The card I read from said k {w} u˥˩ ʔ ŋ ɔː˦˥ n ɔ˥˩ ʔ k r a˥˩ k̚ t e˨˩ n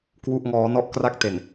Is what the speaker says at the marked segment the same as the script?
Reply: yes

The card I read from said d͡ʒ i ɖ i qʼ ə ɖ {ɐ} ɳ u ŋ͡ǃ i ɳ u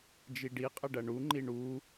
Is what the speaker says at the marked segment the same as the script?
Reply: yes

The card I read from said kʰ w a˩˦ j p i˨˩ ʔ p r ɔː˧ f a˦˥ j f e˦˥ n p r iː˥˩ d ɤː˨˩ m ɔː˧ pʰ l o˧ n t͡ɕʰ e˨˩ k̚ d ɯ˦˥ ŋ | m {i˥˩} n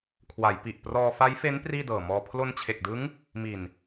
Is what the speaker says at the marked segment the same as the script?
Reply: no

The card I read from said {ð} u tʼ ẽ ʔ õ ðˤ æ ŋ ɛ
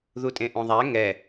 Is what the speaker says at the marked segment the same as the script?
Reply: yes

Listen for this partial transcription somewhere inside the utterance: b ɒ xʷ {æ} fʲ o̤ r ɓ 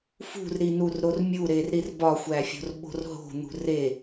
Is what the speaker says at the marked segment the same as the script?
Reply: yes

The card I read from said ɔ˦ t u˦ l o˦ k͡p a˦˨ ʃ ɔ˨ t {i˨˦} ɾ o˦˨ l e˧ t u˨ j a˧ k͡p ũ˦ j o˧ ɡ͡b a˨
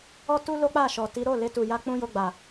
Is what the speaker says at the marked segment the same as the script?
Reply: yes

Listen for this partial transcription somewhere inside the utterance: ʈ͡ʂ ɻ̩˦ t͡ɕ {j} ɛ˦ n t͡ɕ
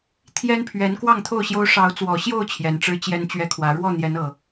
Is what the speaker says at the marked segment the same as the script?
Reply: yes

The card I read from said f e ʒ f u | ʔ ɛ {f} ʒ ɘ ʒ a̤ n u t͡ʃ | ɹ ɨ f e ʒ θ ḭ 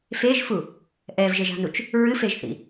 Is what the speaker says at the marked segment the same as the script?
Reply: no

